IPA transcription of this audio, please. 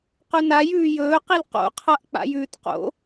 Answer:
qʉnajʉː jɵːqil qo̰qʰaʔ k͡pa̰jʉːtqo̰

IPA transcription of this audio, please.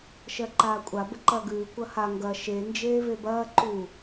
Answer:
ʃɜǃaːkʷʼa bəǃɐːɡʉː kʷɐha ŋɡɐ ʃe nd͡ʒeːvebɐː ǃu

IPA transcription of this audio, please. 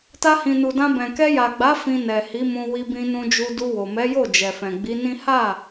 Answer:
ta˧hĩ˨nu˨dã˧ bɛ̃˨kɛ˧ja˨ɡ͡ba˨˦ fĩ˧ nɛ˨hi˨˦mũ˧ wi˧bĩ˧nũ˧d͡ʒu˧ du˧wo˨mɛ˨˦jo˦˨ d͡ʒɛ˨fɛ̃˨ɡ͡bi˨˦nĩ˦ ha˦˨

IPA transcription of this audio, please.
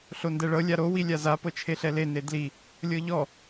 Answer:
ɬondɛɭɤ lʲaɾo wilʲaza pɤt͡ʃʰeɬɛle nedli | lʲɤʎɔ

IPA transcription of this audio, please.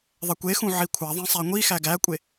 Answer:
ðˤɛkʷexũ ʕikʷʰaðˤĩ sˤæŋʷixæ ɡækʷʼe

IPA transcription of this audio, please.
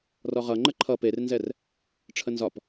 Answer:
rɔʁʌ ŋ͡ǃəǃʰʌ pernzɛr | ʈ͡ʂʰənzɒp

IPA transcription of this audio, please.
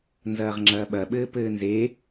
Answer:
nzɐːʁŋ͡ǁɐːɓɐɓɘː pɘːnze

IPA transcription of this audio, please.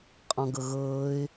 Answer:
qʼɔ̃ɡɤɣɤːɪ̯

